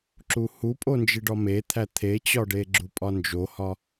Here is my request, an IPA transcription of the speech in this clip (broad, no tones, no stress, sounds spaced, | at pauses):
ǁ u h u pʼ o n d͡ʒ i ɖ ɒ m e t̪ʰ æ t̪ʰ e t͡ɕ ɒ ɖ e ɡ͡ǁ u pʼ ɒ n d͡ʒ o h ɒ